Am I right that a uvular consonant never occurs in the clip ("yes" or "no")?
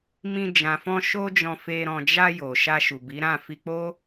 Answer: yes